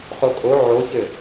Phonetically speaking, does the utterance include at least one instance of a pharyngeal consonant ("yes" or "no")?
yes